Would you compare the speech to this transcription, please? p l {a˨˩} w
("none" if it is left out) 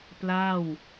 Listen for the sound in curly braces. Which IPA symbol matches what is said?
a˥˩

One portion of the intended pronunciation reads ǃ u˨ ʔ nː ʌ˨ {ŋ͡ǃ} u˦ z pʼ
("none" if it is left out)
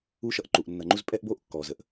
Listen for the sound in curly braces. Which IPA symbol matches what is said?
ŋ͡ǃ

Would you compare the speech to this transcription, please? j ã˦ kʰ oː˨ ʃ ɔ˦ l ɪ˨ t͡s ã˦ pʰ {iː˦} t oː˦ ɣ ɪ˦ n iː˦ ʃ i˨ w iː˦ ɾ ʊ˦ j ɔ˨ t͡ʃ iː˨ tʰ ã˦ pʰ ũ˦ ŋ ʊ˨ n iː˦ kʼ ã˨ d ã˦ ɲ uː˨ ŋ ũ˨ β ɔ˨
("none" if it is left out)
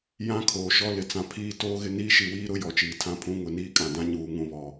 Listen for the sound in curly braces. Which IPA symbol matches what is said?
iː˦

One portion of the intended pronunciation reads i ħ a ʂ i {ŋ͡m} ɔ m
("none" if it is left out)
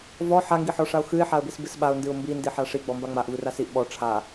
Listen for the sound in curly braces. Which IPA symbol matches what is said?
ɡ͡b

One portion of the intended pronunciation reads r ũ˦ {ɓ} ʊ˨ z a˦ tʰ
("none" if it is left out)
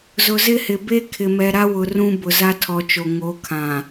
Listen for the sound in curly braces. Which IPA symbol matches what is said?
b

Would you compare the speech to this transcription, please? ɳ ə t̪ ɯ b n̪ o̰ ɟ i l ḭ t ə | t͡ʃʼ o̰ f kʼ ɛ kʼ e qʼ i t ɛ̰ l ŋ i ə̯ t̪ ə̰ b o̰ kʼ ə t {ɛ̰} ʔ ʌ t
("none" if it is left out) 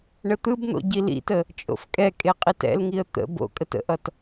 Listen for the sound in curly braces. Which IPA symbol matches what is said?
ə̰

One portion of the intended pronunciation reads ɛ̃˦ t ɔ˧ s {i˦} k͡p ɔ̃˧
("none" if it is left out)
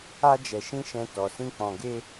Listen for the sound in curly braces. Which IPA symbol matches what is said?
ĩ˦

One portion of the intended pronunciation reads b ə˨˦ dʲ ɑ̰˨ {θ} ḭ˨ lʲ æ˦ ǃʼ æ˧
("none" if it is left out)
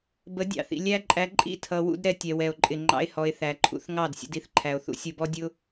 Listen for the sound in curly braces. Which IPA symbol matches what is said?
θ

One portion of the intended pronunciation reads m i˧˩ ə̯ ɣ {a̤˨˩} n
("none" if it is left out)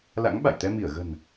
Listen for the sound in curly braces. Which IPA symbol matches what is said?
ə̤˨˩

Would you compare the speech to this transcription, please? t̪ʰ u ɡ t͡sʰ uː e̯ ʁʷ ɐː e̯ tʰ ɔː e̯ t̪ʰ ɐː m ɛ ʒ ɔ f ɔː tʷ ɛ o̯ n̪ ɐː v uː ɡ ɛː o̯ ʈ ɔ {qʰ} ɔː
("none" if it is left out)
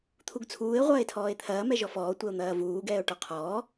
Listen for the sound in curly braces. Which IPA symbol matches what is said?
qʰ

